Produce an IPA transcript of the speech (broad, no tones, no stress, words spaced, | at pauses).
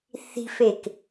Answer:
θi̤fek